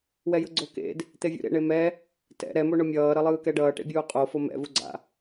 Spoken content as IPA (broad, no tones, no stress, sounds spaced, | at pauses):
w ɛ j ɯ ɡ͡ǀ o k ḛ d | t̪ e vʲ ṵ ɾ ḛ ɳ e m ɛ | t ɛ̰ ɾ ɛ m o ɳ o mʲ ʌː ɾ ʌ lˠ ɯː k ɛ ɖ ʌː ʈ ḛ bʲ uː qʼ o f o m ɛ̰ v u ɡ͡ǀ a̰